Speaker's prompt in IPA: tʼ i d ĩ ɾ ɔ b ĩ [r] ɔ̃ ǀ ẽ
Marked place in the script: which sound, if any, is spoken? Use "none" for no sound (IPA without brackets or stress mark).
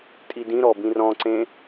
r